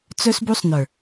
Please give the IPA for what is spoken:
t͡s œ˧ s b u˧ sˤ n ə˞˨

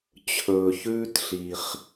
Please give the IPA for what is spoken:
t͡ɕʰ ɵː˨ ç ʉː˦ t ɬ i˨ χ

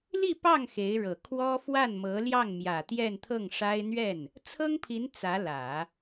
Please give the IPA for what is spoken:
l i˥˧ p ɑ˥˩ ŋ x e˧˥ ɪ̯ ɻ ɤ˨˩ kʰ w ɔ˥ f w a˥˩ n m ɤ˧˥ l j ɑ˥˩ ŋ m j ä˨˩ t̪ j ɛ˥˧ n t̪ʰ ɤ˥˩ ŋ ʂ a˥ ɪ̯ n̪ ɥ ɛ˥˩ n | t͡sʰ ɤ˥ ŋ pʰ i˧˥ n t͡s ä˧˥ l ä˨˩˦

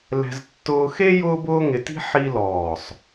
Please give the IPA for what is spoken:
l ɛ̤˧ z tː ʊː˧ x e˥ j ʊː˥ b ʊː˥ ŋ ɪ˧ t i̤˥ ħ i˥ l ɔː˧˩ sˤ

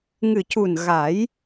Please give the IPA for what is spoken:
ŋ ɨ˨˩ c u˨˩ n ɣ a˨˩˦ j

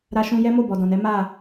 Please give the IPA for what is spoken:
ɾ a˧ ʃ ũ˧ j ɛ˦ m o˦˨ b ɔ˨ d ɔ̃˨ n ɛ˨˦ m a˦˨

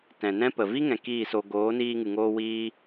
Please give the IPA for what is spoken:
t ɛ̃˨ n ɛ̃˦ p ə˨ v i˦ ŋ ɛ̃˨ k iː˦˨ s o˧ ɡ oː˨˦ n iː˧ ŋ ɨ˨ ŋ oː˧ w iː˦

